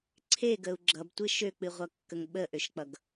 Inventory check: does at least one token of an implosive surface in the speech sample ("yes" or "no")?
yes